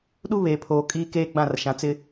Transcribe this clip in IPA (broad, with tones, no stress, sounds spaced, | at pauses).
ɗ u˦ β eː˨ pʰ oː˨ kʼ iː˦ k eː˦ ɡ͡b ã˦˨ r ʃ ã˨ t͡s ɪ˦